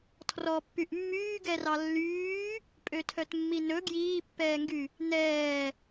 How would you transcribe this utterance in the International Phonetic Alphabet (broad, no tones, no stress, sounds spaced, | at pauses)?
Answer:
tʰ r ɔ pː y ʔ mː yː ɡ ɛ r ɑ lː yː | pʼ ø tʰ œ t mː i n ɵ ɡ j iː pː ɛː ŋ ɡ y | n ɛː